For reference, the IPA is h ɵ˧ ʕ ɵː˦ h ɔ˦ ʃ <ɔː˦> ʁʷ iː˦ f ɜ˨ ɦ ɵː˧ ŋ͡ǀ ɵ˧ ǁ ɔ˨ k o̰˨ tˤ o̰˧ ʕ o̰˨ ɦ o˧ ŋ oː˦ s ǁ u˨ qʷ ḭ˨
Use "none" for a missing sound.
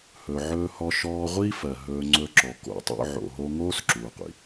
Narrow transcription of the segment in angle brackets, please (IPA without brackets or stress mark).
ɔː˧